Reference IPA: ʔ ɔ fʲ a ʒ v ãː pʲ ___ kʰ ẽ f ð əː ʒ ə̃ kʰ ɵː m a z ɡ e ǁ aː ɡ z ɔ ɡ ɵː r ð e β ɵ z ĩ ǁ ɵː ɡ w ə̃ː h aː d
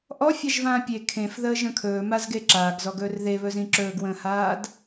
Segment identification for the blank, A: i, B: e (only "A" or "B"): B